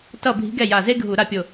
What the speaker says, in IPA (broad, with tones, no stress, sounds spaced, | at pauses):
t ʌ˥˩ bʱ i̤˧˥ ɡ ɛ˥˩ j a˧˩ z e˥ ɡʱ u˧˩˧ ɾ a˥˩ pʲ o˧˩